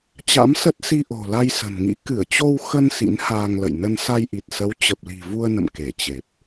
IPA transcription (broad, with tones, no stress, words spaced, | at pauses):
t͡ɕa̰˧˥msə˦˥t̚ si˧ʔo̤˨˩la˧j sə̤˨˩nŋḭ˧˥ kɨ˧˩ə̯t͡ɕo˧w xə˧n sḭ˧˥n haː˧ŋ lə̰˧˨jnə˧n sa˧jʔi˨˩t̚sə˨˦w t͡ɕə˨˩p̚li̤˨˩ vu˧ə̯nə̰˧˨m ke˧˩t͡ɕe˨˩p̚